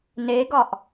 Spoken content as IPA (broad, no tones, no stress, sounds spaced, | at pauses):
n e ɡ ɒ ʔ